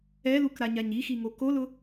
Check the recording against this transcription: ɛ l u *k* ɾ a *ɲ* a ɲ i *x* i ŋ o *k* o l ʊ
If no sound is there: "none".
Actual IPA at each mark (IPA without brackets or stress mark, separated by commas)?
k, ɲ, x, k